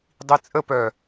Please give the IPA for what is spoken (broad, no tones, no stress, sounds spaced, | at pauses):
dˤ i t͡sʼ ə p œ